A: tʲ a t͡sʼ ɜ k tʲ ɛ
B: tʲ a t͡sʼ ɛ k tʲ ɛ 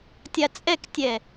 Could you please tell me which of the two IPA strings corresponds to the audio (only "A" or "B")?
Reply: B